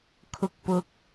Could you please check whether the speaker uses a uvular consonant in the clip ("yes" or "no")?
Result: no